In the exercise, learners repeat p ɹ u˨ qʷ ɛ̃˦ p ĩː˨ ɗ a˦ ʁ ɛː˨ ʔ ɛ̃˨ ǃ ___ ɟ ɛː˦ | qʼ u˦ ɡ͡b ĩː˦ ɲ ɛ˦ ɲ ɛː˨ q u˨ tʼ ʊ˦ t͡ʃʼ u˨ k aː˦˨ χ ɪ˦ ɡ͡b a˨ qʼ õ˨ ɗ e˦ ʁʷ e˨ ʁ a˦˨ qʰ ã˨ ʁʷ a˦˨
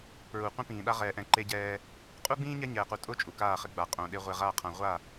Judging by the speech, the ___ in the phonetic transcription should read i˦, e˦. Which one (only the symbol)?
e˦